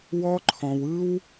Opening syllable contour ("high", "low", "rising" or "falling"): high